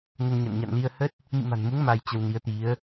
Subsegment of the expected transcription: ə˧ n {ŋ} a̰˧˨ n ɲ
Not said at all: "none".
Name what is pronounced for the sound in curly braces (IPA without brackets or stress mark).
ɲ